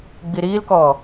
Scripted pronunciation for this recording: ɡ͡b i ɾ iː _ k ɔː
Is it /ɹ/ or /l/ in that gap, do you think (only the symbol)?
l